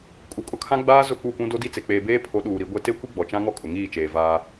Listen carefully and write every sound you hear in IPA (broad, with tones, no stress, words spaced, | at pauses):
kʼu˨kʼʊ˦kʰã˦ɡ͡baː˦ zʊ˦˨k͡pu˦˨pũ˦ do˦di˦t͡se˨ k͡peː˨beː˦pʰo˨˦ ɗuː˨ ɾi˨˦ɡʷe˦ te˦kʷi˦ ɡ͡bɔ˨t͡ʃã˦ŋɔ˦ kʼʊ˨ŋiː˦˨t͡ʃeː˨ vaː˦